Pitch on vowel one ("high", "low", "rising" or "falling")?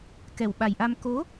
low